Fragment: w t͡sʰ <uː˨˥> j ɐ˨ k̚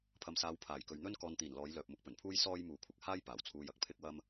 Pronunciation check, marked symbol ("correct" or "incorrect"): incorrect